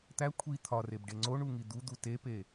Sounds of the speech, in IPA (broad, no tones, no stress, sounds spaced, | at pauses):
t̪ æ kʷʰ i t̪ʰ ɒ r e b ɖ e ŋ͡ǀ o ɳ u ŋ i d̪ u d̪ u t e p e